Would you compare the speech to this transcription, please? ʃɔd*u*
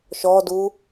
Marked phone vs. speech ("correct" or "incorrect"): correct